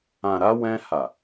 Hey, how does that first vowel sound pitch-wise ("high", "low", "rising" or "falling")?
low